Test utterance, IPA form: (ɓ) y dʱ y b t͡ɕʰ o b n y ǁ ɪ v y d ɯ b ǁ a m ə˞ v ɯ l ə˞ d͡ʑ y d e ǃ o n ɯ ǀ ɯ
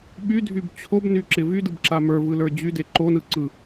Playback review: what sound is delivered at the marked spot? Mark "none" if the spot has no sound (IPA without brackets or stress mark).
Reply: ɓ